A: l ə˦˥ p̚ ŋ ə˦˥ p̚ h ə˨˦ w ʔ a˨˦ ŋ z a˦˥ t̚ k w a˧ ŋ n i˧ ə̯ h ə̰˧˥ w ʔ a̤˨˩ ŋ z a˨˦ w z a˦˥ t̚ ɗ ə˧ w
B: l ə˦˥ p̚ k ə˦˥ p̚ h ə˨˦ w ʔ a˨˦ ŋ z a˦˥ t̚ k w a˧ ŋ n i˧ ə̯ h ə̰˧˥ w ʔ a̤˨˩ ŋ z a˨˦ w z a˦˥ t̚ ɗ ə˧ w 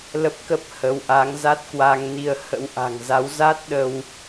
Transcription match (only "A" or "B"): B